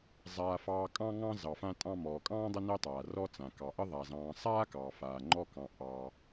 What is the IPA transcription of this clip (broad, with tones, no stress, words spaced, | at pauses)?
zˤaː˨ fɑː˨ kʼɑ̃˦ŋɑ̃˦ zɑ˩fã˦tʼɑ̃˦mɔː˩ kʼɑ̃ː˥dˤə˦ nəː˥tˤaː˩rɔ˥t͡sã˩ kɑ˩ʔə˥ ðˤa˩zɑ̃ː˨ sˤaː˥kɑː˩faː˩ ŋ͡ǃɔ˦kɑ̃˨ ʔɑː˨